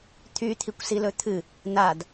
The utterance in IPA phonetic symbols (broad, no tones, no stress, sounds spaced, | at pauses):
t̪ʰ y t̪ʰ i kʷ s i l ɵ t̪ʰ ɨ | n̪ a d